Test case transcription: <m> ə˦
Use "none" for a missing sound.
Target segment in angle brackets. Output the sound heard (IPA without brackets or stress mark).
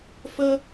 f